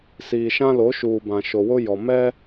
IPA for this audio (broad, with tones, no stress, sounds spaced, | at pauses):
s iː˨ ʃ ã˦ l o˨˦ ʃ uː˨ b ã˨ ʃ o˨ w ʊ˦ j ɔ˨ m ɛ˦